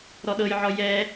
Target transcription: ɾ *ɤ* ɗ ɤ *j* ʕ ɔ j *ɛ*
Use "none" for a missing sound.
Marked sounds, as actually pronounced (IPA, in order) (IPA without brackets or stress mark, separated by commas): ɔ, j, ɛ